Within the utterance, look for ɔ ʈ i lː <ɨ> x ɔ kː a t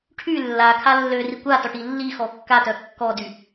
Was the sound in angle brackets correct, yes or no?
no